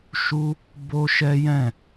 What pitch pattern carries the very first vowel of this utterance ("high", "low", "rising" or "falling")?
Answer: high